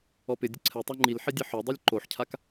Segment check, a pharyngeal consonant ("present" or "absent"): present